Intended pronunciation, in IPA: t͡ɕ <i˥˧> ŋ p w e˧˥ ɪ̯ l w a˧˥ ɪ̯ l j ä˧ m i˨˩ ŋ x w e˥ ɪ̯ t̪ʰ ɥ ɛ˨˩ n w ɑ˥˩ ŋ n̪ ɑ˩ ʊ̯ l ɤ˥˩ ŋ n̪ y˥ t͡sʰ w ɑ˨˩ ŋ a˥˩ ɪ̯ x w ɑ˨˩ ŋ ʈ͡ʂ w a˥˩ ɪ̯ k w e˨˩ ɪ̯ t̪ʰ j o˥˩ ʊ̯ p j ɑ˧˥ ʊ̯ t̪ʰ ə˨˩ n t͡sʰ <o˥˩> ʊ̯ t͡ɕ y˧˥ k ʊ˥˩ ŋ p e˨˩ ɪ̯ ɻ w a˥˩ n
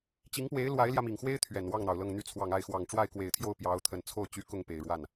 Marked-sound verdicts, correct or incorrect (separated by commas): incorrect, correct